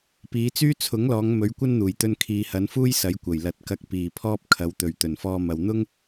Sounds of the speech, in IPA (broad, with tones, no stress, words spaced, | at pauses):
piː˨˧t͡syː˥ t͡sʰʊ˨˥ŋlɔː˨˧ŋ mɵ˨˥ɥkʷɐ˥nn̪uː˨˩jt̪ɵ˧n kʰiː˨hɐ˨˧nfuː˥j sɐ˨˥jkʷɐ˨˩j lɐ˨˥t̚kɐ˧k̚ piː˨˩ pʰɔː˥p̚kʰɐ˨˧w t̪ɵ˨˩ɥ t̪ɵ˨˩nfɔː˧mɐ˨w n̪ʊ˥ŋ